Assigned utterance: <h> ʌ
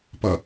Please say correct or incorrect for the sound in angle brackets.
incorrect: p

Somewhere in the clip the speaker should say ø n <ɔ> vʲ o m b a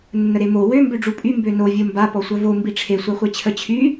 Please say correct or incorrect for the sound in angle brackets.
incorrect: o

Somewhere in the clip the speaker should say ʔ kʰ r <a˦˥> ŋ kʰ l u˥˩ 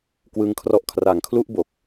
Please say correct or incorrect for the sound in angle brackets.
incorrect: a˩˦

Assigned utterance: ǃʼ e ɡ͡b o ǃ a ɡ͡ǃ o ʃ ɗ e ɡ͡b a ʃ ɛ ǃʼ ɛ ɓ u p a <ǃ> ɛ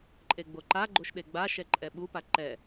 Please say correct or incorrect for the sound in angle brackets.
correct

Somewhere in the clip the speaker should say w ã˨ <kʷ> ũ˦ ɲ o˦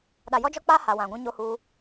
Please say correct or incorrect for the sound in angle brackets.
incorrect: ɡʷ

